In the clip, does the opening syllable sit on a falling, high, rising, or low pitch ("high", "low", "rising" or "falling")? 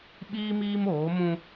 high